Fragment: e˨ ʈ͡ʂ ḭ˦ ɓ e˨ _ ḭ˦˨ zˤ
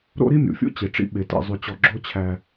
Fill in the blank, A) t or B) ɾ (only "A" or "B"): A